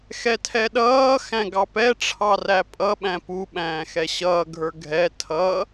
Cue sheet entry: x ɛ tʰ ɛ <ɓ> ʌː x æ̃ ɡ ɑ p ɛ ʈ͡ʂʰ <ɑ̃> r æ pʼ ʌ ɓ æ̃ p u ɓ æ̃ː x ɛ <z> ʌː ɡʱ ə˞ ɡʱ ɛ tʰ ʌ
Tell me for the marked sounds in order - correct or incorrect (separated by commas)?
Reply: incorrect, incorrect, incorrect